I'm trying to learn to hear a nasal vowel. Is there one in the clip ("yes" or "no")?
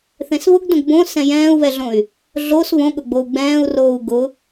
yes